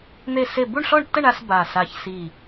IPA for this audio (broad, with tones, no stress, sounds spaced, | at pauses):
n̪ e˥˨ s e˥˨ b u˥˨ ɳ ɬ ɔ˥˨ ɳ tː ə˥˨ ɳ a˥˨ s b a˧˩ s a˧˩ ç s i˧˩